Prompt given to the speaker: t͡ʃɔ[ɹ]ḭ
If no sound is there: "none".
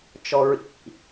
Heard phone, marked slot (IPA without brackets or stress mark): ɹ